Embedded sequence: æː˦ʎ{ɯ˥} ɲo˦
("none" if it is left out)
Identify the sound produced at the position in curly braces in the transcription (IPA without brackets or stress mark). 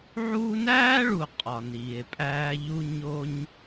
u˥